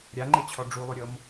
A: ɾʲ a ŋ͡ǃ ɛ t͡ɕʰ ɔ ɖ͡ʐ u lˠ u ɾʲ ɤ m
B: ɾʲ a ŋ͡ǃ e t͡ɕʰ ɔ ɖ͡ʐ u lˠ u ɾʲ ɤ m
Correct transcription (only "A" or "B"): B